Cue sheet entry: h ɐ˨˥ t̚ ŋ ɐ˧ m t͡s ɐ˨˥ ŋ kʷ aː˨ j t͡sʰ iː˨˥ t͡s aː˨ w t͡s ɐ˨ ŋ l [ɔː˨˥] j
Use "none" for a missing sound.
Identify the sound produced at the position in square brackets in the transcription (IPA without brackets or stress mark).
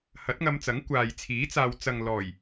ɔː˨˩